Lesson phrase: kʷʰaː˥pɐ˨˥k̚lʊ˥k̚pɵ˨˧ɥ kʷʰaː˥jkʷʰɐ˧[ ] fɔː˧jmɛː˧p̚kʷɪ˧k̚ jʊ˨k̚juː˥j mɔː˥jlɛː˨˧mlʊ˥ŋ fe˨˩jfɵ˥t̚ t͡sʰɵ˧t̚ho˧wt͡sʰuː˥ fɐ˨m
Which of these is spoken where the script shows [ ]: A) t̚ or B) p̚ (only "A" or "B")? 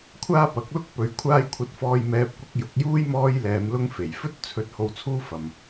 A